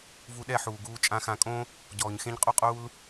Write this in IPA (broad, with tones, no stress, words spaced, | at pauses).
vu˧ɗɛ˦˨ħuː˨ɡuː˧ t͡ʃʼã˧xã˧kʼõ˦ | ɟɔː˨ɲxẽ˦ɲ qʼu˦qʼuː˦l